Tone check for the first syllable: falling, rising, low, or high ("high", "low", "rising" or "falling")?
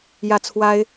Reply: high